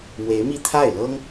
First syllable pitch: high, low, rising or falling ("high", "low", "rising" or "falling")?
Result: rising